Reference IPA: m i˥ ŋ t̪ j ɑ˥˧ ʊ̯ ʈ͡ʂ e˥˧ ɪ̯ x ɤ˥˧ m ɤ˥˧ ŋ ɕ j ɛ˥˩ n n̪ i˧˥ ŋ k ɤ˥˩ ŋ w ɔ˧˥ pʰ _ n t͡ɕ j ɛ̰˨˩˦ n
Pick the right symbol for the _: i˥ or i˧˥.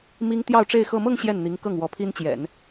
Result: i˥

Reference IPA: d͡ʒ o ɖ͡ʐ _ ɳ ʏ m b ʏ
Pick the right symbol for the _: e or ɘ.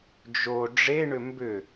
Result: e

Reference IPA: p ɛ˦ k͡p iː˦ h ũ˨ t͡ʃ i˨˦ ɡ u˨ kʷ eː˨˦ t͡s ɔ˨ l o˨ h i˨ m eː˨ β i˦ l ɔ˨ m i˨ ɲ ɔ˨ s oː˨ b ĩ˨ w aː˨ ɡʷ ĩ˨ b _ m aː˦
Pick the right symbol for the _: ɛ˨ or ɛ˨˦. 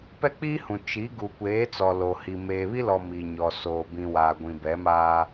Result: ɛ˨˦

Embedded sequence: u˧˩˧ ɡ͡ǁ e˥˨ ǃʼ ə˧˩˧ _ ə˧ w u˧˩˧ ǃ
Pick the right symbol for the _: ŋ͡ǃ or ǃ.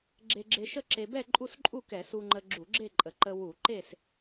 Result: ǃ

